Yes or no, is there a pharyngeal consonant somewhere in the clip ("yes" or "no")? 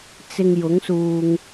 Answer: no